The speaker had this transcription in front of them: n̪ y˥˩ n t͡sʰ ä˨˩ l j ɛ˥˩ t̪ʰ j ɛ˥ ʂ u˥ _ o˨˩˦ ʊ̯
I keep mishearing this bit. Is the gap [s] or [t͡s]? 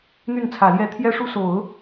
s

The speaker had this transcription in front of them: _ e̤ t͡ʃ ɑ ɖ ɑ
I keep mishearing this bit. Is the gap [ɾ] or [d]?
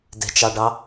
d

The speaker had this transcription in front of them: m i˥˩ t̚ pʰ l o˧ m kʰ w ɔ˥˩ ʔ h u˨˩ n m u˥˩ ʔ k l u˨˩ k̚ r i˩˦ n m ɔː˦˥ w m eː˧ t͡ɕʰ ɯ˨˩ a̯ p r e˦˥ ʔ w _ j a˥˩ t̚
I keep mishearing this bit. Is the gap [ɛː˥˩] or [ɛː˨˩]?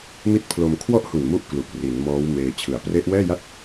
ɛː˥˩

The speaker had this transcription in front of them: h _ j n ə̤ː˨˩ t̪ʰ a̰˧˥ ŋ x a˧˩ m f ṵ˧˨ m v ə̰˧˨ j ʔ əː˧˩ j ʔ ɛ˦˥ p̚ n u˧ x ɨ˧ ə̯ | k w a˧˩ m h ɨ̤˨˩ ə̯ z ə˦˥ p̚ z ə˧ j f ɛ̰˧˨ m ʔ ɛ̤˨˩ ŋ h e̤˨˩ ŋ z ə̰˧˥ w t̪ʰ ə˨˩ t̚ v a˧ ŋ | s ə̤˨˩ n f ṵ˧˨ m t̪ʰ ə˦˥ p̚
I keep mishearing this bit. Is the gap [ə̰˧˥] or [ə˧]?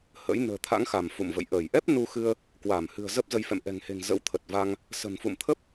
ə̰˧˥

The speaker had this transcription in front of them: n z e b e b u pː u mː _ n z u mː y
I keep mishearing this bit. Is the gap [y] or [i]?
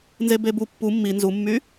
i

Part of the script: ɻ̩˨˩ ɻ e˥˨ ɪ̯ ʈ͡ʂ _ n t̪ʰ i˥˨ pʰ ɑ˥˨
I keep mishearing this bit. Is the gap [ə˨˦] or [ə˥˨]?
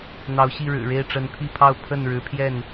ə˨˦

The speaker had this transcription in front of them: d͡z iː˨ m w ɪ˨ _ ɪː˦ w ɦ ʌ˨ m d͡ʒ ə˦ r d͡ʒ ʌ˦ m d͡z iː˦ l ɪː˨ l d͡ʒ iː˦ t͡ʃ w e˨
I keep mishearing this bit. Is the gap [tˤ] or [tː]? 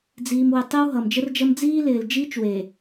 tˤ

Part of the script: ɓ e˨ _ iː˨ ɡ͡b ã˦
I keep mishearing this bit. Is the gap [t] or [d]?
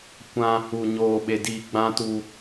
d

